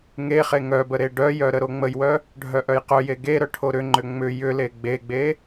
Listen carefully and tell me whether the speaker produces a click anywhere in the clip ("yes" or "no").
yes